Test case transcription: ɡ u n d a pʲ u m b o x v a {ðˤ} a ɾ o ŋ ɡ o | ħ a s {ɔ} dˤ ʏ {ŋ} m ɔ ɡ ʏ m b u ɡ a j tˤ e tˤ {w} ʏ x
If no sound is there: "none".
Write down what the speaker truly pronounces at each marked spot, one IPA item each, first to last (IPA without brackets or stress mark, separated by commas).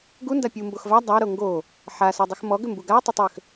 dˤ, ɔ, x, w